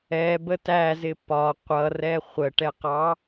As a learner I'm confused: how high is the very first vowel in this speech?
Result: mid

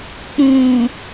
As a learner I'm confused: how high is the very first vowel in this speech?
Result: high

